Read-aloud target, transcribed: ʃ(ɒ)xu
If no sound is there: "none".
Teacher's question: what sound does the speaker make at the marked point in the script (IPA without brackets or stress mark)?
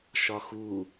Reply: ɒ